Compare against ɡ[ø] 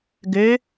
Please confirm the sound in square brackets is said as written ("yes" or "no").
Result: yes